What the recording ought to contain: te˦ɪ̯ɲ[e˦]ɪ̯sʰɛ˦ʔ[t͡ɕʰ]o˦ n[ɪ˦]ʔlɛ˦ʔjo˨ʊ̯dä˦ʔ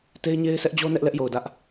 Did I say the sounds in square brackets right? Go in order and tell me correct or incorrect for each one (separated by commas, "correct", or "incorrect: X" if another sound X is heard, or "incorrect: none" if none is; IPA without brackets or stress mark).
correct, incorrect: d͡ʑ, incorrect: ɛ˦